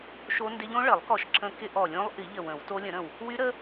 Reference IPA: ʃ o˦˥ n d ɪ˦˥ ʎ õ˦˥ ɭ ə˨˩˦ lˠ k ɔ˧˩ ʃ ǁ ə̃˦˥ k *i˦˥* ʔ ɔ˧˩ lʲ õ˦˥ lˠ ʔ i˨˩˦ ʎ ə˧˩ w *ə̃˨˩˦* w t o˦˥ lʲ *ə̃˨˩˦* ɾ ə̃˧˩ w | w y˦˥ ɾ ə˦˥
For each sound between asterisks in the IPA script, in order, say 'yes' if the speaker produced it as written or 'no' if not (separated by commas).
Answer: no, yes, yes